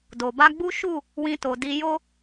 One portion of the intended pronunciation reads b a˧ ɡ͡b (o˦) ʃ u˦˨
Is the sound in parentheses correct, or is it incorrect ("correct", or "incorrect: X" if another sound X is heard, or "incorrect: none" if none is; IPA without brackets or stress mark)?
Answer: incorrect: u˦